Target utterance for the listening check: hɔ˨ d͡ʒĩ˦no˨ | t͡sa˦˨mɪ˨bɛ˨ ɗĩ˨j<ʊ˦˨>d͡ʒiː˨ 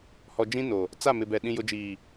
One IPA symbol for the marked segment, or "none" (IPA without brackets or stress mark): ʊ˨